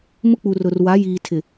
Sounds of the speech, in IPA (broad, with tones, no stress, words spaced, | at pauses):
mʊ˦k͡pu˨rʊ˨r wa˨˦jiː˨tʰɪ˨